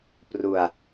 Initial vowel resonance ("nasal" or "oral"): oral